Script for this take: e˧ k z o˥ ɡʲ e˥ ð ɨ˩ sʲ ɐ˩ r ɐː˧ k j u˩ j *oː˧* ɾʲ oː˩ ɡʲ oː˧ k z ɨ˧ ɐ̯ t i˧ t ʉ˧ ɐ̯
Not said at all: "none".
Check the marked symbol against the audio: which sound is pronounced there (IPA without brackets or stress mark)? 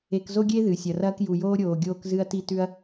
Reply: oː˧